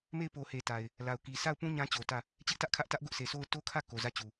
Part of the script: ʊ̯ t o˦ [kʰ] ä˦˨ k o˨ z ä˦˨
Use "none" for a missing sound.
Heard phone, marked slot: kʰ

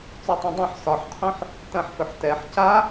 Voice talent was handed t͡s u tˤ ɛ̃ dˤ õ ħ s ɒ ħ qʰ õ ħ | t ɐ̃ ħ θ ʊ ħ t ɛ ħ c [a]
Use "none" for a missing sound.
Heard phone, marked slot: a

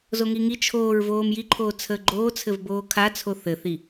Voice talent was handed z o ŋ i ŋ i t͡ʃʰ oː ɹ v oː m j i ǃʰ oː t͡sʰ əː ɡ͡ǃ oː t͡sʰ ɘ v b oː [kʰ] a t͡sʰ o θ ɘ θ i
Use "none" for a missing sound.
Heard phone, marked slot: kʰ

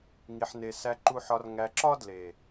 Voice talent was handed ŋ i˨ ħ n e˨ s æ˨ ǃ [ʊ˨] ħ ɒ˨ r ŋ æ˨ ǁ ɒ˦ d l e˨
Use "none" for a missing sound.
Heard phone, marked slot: u˨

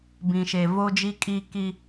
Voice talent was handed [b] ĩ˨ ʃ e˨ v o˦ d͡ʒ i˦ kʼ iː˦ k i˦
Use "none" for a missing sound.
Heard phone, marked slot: b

